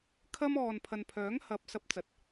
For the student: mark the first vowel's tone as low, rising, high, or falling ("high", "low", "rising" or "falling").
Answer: high